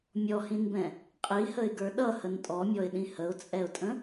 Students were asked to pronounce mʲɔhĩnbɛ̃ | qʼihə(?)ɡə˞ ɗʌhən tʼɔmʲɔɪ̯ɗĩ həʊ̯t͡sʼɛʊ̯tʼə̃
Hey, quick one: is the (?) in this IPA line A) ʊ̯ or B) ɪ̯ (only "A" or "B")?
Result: B